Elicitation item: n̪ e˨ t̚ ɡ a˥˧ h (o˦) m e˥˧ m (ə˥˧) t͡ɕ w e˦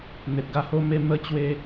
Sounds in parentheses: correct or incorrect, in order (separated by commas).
correct, correct